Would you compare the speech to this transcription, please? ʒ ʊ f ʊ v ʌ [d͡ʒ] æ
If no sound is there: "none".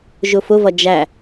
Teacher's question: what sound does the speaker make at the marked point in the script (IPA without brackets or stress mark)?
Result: d͡ʒ